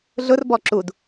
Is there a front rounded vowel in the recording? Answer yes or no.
no